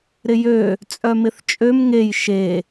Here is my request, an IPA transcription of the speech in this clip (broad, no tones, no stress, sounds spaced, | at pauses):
ɾ ɪ j ø | t͡sʼ œ m ɪ θ t͡ʃʼ ø m ŋ e j ʃ e